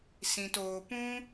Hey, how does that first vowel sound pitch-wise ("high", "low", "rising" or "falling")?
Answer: low